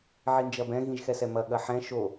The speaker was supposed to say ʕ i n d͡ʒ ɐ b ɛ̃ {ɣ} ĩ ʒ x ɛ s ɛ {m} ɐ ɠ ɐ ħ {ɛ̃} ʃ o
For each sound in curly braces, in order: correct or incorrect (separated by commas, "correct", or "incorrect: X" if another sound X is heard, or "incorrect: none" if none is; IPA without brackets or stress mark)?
correct, correct, correct